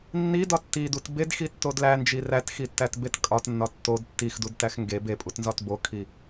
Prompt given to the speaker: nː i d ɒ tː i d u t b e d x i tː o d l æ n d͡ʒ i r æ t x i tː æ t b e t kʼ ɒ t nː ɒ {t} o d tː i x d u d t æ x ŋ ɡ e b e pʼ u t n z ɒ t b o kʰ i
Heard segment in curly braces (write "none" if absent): tː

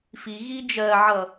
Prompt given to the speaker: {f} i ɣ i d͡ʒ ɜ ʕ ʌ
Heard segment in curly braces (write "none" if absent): f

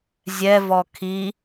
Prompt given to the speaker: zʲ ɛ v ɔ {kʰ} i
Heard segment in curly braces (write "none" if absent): kʰ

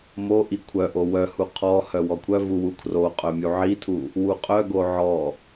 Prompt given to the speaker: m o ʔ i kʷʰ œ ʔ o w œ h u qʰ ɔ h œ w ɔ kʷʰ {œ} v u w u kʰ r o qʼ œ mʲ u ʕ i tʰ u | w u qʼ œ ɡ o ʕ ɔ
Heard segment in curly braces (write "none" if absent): œ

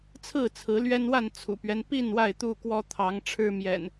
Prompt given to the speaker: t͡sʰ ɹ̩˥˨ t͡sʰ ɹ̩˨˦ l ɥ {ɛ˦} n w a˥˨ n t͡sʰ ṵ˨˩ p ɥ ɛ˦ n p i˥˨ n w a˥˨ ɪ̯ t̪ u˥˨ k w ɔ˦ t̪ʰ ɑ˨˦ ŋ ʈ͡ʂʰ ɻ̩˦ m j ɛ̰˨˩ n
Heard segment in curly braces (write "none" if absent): ɛ˦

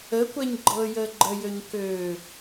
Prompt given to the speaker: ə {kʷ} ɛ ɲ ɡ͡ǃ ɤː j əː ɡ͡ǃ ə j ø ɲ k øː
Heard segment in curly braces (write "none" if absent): kʷ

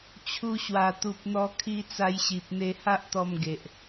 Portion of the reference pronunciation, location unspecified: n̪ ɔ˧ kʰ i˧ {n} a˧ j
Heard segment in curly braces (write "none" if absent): t͡s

